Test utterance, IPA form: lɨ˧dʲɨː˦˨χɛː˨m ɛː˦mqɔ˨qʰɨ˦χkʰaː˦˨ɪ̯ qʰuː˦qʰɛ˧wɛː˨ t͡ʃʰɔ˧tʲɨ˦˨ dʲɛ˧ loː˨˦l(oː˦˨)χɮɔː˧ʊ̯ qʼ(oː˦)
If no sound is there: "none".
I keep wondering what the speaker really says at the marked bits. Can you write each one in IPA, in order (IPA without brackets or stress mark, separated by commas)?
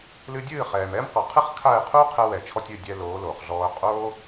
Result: oː˨, oː˦